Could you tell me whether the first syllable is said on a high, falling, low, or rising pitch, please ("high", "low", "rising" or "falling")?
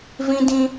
high